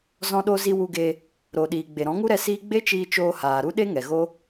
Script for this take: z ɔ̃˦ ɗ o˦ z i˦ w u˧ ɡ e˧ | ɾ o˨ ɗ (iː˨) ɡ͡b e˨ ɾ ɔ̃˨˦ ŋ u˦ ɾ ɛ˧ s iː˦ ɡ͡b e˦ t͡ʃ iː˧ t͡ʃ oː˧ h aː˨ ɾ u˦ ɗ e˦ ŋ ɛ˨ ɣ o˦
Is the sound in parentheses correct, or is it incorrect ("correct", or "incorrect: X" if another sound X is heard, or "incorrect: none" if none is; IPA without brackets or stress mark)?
correct